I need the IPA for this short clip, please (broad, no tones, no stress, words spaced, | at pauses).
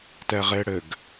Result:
tɛʁeɽɘɡ